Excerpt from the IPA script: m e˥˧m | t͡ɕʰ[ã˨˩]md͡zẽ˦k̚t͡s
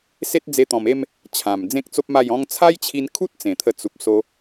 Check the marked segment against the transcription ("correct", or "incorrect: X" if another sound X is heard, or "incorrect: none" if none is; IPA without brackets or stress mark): correct